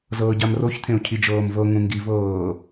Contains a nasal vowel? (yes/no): yes